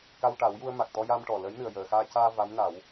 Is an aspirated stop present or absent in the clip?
absent